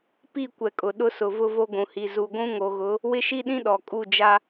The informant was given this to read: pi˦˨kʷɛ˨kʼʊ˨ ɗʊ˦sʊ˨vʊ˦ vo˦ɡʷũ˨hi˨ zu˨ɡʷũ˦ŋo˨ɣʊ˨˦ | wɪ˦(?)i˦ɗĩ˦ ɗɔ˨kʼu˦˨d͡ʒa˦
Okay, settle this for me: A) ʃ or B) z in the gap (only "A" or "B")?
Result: A